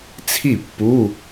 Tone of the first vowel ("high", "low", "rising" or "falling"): falling